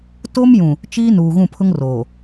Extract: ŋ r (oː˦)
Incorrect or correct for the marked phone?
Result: incorrect: oː˨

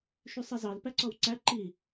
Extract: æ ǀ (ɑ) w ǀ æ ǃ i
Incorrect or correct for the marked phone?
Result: incorrect: ɔ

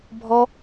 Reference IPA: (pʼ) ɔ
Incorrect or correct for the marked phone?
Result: incorrect: bʱ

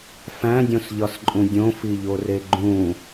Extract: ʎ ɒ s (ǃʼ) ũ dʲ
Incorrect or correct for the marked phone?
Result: correct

